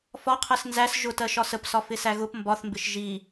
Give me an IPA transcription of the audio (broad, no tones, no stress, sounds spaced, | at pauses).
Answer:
f ɒ qʰ ɜ s n z æ s ʒ ʊ t ɜ ʃ ɒ s ə p s ɒ f ɪ s æ ɣ ʊ p m b ɒ θ m b ɪ ʃ ʒ i